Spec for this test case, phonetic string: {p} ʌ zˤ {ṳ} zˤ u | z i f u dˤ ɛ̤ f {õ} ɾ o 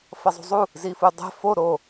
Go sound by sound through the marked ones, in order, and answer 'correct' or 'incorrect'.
incorrect: f, correct, incorrect: o

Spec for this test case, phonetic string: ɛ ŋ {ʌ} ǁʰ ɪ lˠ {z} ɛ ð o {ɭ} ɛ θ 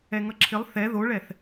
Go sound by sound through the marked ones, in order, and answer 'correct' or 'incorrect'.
correct, incorrect: θ, correct

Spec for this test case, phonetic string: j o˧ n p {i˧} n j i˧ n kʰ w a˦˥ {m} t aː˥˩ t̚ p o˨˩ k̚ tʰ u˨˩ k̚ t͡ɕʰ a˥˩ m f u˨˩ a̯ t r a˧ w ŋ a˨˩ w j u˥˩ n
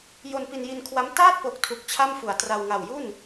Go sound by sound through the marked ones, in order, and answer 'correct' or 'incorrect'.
correct, correct

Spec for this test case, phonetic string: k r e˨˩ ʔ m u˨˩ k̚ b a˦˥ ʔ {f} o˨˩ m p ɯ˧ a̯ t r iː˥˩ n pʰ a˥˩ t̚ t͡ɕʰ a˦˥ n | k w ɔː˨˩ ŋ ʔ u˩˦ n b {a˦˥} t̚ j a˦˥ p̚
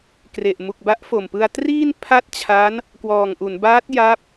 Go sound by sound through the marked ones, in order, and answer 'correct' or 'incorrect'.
correct, incorrect: aː˦˥

